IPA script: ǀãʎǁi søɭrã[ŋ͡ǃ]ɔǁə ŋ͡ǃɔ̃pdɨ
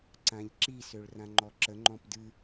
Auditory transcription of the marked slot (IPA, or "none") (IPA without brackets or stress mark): ŋ͡ǃ